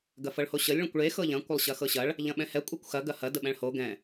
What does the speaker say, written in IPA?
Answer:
ɡ ɐ f ɤ ɭ h o ɕ ə lʲ ɭ ɐ̃ kʷ ɭ e x ɤ ʎ ɐ̃ kʷ ə lˠ ɕ ɐ x ɤ ɕ ɐ ɭ | ʎ ɐ̃ ɓ ɛ̃ h ɛ kʷʼ ɛ kʷ x ɐ ɡ ɐ h ɐ d ə ɓ ɛ̃ ɭ h o ɡ ɛ̃

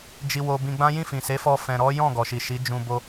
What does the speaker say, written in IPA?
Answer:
d͡ʒ i˧ w o˧ b ĩ˧ ɡ͡b ã˦ j ĩ˦˨ f ĩ˨ s e˨˦ f ɔ˧ f ɛ̃˨ ɾ ɔ˨˦ j ɔ̃˦˨ ɡ ɔ˨ ʃ i˨ ʃ i˨˦ d͡ʒ ũ˧ b o˧

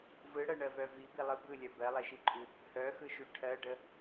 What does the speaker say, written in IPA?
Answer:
v ɯ ɽ ɜ ɳ ɜ v œ v i b i lˠ ɯ b ɯ lʲ œ b ɜ lˠ e ʃ i ǃʼ ʉ | h œ x ɯ ʃ ʉ ʈʰ ɜ ɖ ə

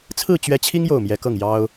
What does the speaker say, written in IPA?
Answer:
t͡sʰ ɹ̩˥˩ t͡ɕ ɥ ɛ˧˥ t͡ɕʰ i˥ ŋ j o˥˩ ʊ̯ m j ɛ˧˥ k ɤ˥˩ ŋ j ɑ˥ ʊ̯

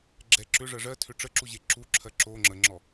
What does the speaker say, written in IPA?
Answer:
ɡ͡ǁ ɛ ǁ ʏ ʐ ɜ ʐ ɜ tʰ ʏ ʈ͡ʂ ə ǁ u ʑ e ǁ u ǁʰ ɜ ǁ o ŋ͡ǁ ə ŋ͡ǁ ɔ

